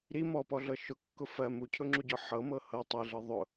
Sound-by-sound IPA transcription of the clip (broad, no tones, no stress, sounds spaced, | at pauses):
ɾ i m ɔ p ɔ ɮ ɤ ʃ ʊ kː ʊ f ɜ m u cʰ ʊ ŋ͡ǁ u ɟ ɔ ħ ɤ m ɤ h ɤ tˤ i ɮ ɤ ðˤ ʊ